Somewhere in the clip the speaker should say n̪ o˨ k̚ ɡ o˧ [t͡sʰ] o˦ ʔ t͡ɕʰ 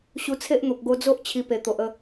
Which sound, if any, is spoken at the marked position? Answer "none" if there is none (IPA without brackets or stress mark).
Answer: d͡z